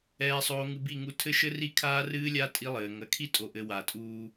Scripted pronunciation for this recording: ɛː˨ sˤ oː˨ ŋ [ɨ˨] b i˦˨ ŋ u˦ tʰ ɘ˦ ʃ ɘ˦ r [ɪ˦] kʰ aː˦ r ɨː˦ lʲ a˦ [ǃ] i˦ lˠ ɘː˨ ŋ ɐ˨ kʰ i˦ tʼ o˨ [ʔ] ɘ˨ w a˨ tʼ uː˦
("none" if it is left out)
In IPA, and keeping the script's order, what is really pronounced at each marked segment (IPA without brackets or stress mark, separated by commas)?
ɨ˨, i˦, tʼ, ʔ